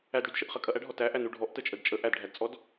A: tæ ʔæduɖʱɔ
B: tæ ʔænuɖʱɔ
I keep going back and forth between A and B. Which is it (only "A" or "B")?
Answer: B